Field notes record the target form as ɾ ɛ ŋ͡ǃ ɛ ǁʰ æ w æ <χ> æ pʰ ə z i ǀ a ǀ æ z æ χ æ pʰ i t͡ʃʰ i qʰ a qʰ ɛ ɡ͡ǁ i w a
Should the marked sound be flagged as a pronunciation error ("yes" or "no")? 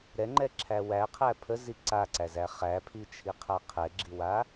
yes